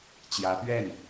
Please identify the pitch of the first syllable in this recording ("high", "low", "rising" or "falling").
rising